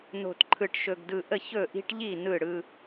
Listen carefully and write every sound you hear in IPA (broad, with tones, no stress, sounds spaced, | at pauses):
n o̤˨ t ǃʰ ɯ˨ ʈ ʃ ɵ˨ ɡ d ɯ˨ ʔ ə˦˨ ç ɵ˦˨ ʔ i̤˦ ʈ ʎ i˦˨ n ɯ˦˨ ɽ ɯ˦